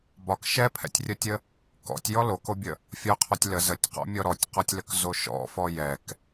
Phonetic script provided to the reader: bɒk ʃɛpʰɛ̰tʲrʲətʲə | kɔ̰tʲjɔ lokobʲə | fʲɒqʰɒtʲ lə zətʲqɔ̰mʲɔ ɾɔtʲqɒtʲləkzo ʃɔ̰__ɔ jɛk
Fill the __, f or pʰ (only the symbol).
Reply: f